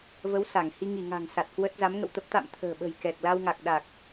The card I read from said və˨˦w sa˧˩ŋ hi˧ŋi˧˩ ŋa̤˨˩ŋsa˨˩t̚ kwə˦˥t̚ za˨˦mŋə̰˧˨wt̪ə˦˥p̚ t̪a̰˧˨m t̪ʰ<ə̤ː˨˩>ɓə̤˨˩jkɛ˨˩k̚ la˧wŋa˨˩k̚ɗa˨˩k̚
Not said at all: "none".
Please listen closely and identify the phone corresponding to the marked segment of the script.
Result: ə̤ː˨˩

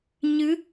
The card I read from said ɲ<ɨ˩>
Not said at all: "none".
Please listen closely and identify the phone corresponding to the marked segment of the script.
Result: ɨ˧˥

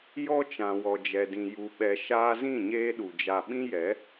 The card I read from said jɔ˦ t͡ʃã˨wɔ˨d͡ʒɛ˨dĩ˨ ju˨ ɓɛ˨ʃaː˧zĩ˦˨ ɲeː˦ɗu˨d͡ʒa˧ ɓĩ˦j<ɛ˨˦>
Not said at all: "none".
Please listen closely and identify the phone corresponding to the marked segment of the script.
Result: ɛ˨˦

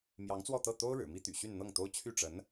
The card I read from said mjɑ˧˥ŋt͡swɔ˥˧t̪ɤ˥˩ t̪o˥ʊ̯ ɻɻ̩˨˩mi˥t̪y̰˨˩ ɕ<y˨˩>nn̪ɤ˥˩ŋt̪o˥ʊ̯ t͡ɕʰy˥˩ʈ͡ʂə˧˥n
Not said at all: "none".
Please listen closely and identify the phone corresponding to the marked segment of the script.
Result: y˥˧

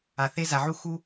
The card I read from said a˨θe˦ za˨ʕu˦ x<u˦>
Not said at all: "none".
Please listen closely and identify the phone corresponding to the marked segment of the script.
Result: u˦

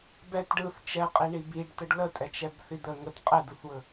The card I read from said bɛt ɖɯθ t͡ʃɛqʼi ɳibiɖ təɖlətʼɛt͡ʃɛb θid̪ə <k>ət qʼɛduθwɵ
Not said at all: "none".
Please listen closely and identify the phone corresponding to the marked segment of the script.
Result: ŋ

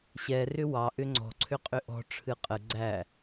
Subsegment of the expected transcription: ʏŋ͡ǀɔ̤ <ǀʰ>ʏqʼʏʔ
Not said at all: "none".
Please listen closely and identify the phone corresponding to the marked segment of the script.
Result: ǀʰ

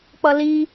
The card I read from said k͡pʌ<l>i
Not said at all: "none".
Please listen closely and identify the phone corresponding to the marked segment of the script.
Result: l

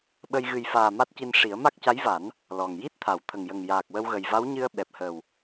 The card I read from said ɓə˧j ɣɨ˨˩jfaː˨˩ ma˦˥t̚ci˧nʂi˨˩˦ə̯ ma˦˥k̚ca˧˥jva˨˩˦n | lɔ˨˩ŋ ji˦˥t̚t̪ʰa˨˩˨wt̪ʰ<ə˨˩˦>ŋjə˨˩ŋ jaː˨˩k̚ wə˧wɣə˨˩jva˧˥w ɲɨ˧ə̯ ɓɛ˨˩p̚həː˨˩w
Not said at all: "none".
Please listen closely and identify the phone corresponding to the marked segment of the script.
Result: ə˨˩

